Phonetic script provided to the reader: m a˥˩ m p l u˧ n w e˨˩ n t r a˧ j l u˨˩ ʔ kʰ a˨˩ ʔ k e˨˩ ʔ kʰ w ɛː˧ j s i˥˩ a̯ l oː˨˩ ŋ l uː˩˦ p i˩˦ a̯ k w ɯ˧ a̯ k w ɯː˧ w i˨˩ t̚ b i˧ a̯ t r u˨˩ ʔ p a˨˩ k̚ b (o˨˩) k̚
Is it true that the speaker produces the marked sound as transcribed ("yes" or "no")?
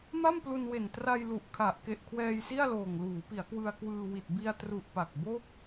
no